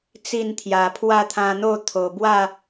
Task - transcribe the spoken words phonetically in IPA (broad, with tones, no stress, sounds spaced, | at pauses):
t͡s i˥˧ n t̪ʰ j a˨˩ pʰ w a˥˧ t̪ʰ ã˧ n̪ o˥˧ t̪ʰ o˨˩ b w a˥˧